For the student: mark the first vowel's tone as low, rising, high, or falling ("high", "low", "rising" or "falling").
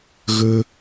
high